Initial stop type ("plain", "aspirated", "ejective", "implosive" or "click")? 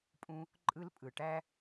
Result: ejective